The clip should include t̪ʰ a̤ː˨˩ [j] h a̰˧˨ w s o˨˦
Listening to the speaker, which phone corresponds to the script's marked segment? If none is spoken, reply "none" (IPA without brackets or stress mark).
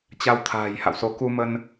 j